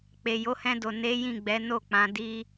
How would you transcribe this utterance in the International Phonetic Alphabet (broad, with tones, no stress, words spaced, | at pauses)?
k͡pe˨jo˨˦hɛ̃˧do˨ ne˨˦ jĩ˦˨ɡ͡bɛ˨˦no˦˨k͡pã˨˦ di˧